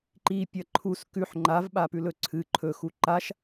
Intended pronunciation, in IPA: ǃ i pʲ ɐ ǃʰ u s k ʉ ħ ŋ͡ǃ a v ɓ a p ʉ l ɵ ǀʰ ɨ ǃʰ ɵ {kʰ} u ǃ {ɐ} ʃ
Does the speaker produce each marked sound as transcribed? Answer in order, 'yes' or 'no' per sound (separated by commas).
no, no